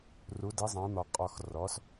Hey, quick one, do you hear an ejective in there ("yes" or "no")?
yes